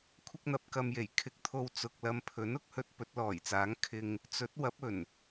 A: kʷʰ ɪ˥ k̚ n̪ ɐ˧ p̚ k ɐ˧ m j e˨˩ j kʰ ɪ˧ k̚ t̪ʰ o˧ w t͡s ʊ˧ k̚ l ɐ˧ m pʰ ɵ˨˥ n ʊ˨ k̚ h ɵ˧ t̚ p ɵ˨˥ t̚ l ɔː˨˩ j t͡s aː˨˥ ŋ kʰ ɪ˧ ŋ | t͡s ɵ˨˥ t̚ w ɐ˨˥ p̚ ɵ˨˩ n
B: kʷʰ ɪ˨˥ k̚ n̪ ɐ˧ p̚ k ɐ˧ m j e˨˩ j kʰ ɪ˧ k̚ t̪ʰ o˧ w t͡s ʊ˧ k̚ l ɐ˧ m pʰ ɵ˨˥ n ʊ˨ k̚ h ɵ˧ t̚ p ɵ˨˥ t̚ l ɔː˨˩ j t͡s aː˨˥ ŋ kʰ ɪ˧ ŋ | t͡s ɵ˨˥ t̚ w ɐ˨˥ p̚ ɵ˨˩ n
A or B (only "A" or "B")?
A